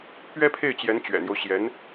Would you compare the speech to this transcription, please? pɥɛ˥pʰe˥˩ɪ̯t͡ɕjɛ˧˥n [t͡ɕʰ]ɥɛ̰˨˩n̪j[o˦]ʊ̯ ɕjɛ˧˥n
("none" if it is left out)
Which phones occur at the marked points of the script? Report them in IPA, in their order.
t͡ɕ, o˦

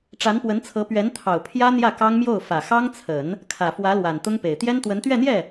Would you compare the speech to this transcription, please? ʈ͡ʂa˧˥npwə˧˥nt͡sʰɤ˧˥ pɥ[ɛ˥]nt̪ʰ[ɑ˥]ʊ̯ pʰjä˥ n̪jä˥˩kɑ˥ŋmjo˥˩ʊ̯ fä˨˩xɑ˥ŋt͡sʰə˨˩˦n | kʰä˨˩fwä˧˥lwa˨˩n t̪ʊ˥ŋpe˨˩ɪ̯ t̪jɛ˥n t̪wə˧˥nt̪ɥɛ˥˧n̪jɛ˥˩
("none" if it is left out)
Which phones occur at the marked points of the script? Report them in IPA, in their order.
ɛ˧˥, ɑ˨˩

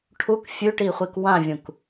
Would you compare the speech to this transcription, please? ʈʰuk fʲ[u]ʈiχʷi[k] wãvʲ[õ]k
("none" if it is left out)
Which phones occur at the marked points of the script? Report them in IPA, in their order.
ʉ, k, ũ

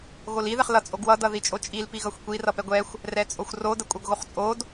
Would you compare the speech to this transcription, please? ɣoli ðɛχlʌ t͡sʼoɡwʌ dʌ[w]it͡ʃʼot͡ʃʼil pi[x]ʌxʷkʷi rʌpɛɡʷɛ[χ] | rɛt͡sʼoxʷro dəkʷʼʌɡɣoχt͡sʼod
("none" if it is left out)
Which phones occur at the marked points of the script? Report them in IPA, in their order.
ð, ɣ, xʷ

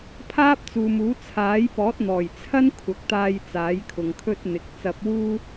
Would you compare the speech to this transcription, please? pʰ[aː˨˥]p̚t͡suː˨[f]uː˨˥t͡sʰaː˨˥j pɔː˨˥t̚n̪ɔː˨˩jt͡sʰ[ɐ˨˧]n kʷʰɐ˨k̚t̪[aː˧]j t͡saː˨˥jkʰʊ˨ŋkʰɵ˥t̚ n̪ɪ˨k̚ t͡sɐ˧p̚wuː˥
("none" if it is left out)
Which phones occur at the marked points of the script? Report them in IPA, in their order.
aː˥, m, ɐ˥, aː˧

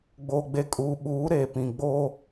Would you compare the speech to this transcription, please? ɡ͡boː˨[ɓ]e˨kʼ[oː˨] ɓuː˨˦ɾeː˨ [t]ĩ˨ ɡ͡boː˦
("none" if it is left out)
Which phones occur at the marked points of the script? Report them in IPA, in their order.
ɡ͡b, uː˨, p

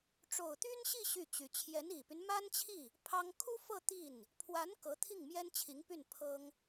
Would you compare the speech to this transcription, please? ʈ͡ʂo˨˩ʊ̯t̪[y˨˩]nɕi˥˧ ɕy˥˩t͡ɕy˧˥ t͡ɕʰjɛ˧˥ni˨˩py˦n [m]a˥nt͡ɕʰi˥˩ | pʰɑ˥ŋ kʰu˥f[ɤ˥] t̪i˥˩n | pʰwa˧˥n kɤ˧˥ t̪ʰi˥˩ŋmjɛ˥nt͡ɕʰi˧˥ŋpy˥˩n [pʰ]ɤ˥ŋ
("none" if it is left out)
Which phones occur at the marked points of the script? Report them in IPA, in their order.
y˥, m, ɤ˥˧, pʰ

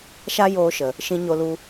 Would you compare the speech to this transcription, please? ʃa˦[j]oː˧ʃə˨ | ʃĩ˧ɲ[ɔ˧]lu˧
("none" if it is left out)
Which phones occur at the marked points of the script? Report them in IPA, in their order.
j, o˧

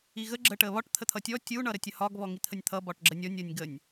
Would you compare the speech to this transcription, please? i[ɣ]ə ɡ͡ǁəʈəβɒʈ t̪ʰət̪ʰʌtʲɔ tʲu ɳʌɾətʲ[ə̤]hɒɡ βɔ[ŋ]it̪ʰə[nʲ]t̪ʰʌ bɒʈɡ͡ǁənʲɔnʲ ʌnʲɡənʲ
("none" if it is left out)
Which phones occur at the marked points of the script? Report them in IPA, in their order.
ɣ, ə, ŋ, nʲ

